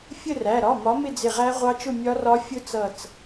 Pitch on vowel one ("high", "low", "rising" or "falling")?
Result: falling